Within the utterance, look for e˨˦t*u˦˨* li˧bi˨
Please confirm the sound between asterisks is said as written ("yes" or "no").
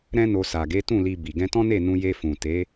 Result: no